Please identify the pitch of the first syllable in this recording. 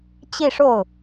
falling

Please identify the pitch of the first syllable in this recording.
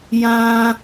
high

